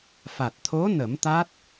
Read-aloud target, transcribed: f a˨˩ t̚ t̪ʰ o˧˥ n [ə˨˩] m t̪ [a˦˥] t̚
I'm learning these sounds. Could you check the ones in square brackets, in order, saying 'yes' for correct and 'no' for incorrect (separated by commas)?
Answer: no, yes